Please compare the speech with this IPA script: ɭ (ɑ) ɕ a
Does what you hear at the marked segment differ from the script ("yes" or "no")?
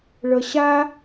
yes